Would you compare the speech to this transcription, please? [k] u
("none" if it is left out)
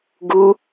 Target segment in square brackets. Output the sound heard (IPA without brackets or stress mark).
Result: ɡ